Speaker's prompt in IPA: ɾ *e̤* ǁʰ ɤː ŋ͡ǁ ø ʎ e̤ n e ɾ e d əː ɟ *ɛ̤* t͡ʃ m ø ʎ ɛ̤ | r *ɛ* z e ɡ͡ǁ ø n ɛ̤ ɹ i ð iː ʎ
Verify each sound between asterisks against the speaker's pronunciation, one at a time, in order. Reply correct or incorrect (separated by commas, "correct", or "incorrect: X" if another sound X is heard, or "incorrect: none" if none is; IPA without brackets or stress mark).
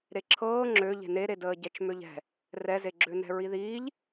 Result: incorrect: e, incorrect: ɛ, correct